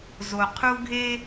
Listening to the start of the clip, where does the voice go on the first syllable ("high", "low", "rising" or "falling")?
low